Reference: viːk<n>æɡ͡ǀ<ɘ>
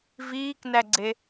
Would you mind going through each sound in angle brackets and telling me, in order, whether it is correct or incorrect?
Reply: correct, incorrect

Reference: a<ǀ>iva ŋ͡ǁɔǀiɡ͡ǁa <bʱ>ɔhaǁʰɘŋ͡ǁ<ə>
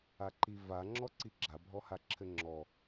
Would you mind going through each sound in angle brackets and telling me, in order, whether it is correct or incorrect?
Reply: incorrect, correct, incorrect

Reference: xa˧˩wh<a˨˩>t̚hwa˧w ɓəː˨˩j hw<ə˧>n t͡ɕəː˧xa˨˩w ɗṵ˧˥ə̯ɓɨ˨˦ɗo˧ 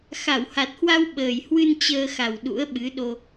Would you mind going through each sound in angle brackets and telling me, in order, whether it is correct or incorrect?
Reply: correct, incorrect

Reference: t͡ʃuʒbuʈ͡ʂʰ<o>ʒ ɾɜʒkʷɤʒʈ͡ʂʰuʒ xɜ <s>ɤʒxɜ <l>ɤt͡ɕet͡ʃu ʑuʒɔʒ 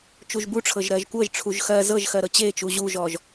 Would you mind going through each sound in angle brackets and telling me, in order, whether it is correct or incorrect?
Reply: incorrect, incorrect, incorrect

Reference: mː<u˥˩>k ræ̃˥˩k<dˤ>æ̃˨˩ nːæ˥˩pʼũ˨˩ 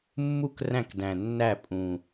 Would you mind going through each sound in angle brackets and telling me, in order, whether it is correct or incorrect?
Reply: correct, incorrect

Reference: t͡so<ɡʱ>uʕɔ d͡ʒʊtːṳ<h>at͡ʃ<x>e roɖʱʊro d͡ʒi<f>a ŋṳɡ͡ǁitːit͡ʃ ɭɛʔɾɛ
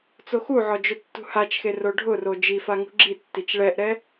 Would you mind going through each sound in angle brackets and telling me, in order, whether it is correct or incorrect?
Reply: incorrect, correct, correct, correct

